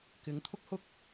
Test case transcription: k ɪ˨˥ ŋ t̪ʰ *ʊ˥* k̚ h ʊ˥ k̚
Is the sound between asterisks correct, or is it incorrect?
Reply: correct